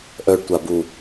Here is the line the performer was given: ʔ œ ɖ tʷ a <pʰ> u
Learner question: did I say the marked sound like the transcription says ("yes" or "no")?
no